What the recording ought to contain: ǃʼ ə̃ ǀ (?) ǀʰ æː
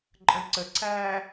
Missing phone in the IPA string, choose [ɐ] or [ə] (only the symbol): ə